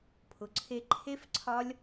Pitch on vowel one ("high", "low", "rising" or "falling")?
low